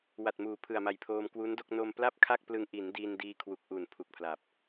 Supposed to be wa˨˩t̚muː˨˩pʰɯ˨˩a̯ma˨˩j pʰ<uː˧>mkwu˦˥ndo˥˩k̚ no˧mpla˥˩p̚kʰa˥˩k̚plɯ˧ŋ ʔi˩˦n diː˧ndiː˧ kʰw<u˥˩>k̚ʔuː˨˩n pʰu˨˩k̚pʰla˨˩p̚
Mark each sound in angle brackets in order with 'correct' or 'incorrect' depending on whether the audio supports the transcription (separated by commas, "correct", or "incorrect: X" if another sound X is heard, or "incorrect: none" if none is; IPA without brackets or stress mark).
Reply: incorrect: oː˧, incorrect: u˨˩